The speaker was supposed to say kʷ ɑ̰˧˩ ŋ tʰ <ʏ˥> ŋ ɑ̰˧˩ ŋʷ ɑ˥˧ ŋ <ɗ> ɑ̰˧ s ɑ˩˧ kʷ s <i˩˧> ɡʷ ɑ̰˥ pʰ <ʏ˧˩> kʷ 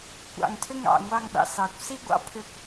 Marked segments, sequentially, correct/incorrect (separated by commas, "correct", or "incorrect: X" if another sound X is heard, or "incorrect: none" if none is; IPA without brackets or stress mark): correct, correct, incorrect: i˥, correct